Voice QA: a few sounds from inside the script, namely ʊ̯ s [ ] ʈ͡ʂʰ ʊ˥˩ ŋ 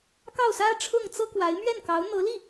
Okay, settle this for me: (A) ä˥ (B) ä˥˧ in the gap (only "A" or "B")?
A